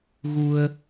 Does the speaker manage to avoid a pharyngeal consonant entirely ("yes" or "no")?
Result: yes